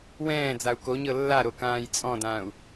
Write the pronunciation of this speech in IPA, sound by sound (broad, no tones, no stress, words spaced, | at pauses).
wɛ̃ː d͡zau̯koɲɤ lːaɾo kãːjt͡sʼɔ̃dãːu̯